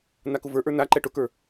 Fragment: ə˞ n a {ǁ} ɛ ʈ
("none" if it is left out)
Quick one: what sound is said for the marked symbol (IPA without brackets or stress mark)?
ǃ